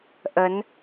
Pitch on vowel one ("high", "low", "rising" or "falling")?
rising